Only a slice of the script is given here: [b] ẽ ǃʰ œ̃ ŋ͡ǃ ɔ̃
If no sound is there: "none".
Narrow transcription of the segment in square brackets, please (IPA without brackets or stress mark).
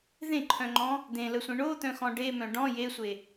ð